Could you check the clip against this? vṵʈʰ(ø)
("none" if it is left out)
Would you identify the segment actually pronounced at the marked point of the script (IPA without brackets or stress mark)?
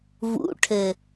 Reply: ɘ